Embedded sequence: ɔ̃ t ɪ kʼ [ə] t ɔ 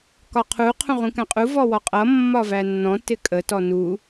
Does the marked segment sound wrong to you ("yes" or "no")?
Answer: no